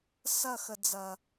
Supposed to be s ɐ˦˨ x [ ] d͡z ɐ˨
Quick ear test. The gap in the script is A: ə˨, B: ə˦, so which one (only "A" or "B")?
A